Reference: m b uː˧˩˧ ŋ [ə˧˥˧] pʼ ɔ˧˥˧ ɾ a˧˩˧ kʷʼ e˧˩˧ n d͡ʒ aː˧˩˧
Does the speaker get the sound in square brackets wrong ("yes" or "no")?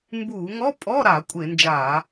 yes